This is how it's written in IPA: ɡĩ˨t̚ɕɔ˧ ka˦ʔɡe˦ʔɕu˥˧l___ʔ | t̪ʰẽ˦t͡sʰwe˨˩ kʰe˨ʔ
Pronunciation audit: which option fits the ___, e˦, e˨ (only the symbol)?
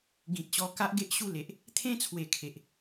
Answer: e˨